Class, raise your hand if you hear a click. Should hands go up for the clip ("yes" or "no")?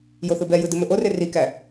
no